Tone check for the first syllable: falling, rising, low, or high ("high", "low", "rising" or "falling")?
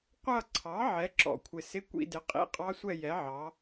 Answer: falling